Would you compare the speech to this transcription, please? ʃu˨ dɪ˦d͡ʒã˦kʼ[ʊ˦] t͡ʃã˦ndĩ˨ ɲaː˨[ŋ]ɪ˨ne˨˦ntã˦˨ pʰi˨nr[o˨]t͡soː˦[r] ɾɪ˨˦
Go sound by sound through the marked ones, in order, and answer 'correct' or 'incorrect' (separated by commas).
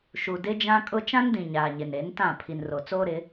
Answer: correct, incorrect, correct, incorrect